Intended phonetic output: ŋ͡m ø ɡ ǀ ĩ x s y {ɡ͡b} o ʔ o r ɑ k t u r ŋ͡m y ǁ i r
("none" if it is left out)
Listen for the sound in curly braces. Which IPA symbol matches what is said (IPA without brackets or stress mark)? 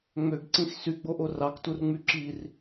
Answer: ɡ͡b